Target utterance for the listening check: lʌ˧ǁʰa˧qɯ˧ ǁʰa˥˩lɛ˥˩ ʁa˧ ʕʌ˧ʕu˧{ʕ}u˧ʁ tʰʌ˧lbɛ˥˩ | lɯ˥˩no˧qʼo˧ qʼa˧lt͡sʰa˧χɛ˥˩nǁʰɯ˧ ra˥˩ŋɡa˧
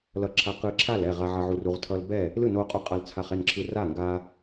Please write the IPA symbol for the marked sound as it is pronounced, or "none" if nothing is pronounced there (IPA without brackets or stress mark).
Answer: r